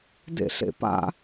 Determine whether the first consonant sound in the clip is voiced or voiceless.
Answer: voiced